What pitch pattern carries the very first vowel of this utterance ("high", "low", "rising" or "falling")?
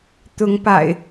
rising